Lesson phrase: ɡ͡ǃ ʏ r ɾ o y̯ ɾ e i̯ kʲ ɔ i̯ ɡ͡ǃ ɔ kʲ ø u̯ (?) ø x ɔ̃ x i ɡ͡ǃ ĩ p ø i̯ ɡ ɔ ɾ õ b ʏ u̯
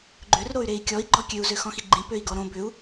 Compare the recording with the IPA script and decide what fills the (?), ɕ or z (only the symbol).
z